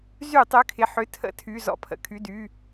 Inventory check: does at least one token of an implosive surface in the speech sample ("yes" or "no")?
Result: no